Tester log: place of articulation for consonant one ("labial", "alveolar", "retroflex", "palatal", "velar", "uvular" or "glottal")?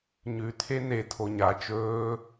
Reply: palatal